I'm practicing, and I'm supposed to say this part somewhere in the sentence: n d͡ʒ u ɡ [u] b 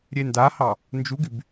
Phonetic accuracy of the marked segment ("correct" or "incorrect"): incorrect